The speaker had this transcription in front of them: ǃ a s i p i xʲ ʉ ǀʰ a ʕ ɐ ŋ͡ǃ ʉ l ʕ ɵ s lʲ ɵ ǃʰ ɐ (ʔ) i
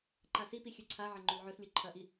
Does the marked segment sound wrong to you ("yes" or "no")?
no